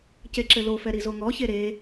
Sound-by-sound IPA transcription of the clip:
c e ǁ ɘ l o f ɛ ɾ i z o ŋ ɔ ç e ɾ e

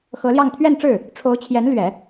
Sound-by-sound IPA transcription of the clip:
x ɤ˧˥ l j ɑ˥˧ ŋ t̪ʰ ɥ ɛ˥˧ n ʈ͡ʂ ɻ̩˥˩ | ʈ͡ʂʰ o˧˥ ʊ̯ t͡ɕʰ j ɛ˧˥ n l ɥ ɛ˨˩˦

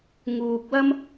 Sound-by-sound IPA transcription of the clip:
ŋ uː˨ k̚ w ɐ˥ m

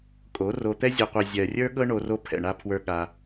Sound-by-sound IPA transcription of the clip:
kʼ o˨˦ r o˧ t̪ ɛ˦ zʲ ɤ˨ qʷ ɜ˨ zʲ ɜ˨ rʲ ə˞˦ ɠ ɤ˦ ɳ o˧ r o˧ pʰ ɛ̰˨ ɳ a˧ pʰ w ə˞˧ ɠ a˧

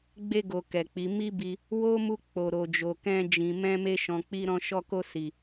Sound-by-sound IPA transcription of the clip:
ɡ͡b e˧ ɡ o˨ k ɛ˨ k͡p i˨˦ m i˦ b i˧ | w o˦ m u˧ k͡p o˨ ɾ o˨ d͡ʒ o˨ k ɛ̃˧ d͡ʒ ĩ˨ m ɛ̃˧ m e˧ ʃ ɔ̃˨ k͡p i˧ ɾ ɔ̃˧ ʃ ɔ˧ k o˧ s i˨

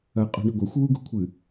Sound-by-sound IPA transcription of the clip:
ɐ qʼ ṳ ɳ ɨ ɡʷ ɐ xʷ w u ɡ ṳ kʷʰ ɨ

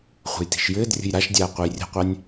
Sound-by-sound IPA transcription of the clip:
χʷ ə̤ j t i̤ ʃ j ɘː d rʲ ə̤ j ɾ a ʃ dʲ aː qʷ ɨ j rʲ ə̤ qʷ a nʲ

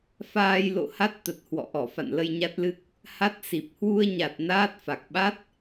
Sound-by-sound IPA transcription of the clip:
f aː˧ j l o̰˧˨ h a˦˥ t̚ t̪ ə˨˩ t̚ h w ɔ̰˧˨ ʔ ɔ˧˩ f a̰˧˨ n l ə˧ j ɲ a˦˥ t̚ l ɨ˦˥ k̚ | h a˦˥ t̚ s i˨˩ p̚ h w u˧ ə̯ ɲ a˨˩ t̚ n aː˦˥ t̚ f a˨˩ k̚ ɓ a˦˥ t̚

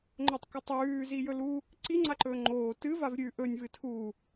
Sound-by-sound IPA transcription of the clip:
ŋ͡ǃ o tˤ k o tˤ ʉː z i j ɵ l u | ǀ i ŋ͡ǀ a ǃ ɵː ŋ͡ǃ oː t ɨ v a v ɾʲ ʉ ʔ ɵ nʲ v ɨ tʰ u

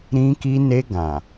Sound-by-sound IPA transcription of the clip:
ɾ ĩ˧ k i˧ n e˧ ɡ ã˨

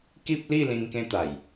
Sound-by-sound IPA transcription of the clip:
k i˦ p̚ l i˥˧ l ĩ˧ ŋ k ẽ˦ t̪ a˨˩ j

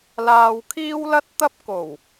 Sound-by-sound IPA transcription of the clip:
l aː˧ w kʰ iː˥ w l ɐ˥ t̚ t̪ ɐ˥ p̚ k o˨˩ w

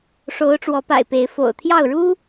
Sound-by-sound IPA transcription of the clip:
ʂ o˨˦ ʊ̯ ʈ͡ʂ w ɔ˨˦ p a̰˨˩ ɪ̯ p e˨˦ ɪ̯ f o̰˨˩ ʊ̯ t̪ʰ j ɑ˥˨ ʊ̯ ɻ u˦

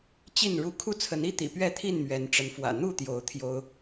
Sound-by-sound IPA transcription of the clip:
t͡ɕ i˥˨ n ɻ u˦ kʰ u˦ t͡sʰ ə˨˦ n i˦ t̪ ḭ˨˩ p ɥ ɛ˥˨ t̪ʰ i˥˨ n m ɥ ɛ˨˦ n ʈ͡ʂ ə˨˦ n f w ä̰˨˩ n̪ u˥˨ t̪ j o˨˦ ʊ̯ t̪ʰ j o˦ ʊ̯

